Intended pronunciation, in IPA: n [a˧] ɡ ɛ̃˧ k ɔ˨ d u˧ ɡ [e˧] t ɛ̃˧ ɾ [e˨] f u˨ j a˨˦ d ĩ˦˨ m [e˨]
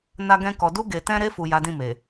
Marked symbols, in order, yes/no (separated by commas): yes, no, no, yes